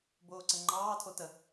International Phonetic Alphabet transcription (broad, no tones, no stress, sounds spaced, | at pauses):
b oː ǀ ə ŋ͡ǃ ɑː tʰ o t ə